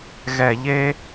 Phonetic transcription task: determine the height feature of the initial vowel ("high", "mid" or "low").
mid